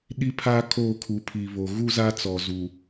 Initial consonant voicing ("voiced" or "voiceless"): voiced